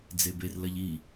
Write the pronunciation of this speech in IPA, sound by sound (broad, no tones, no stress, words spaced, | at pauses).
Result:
d͡zeberlɐʎ i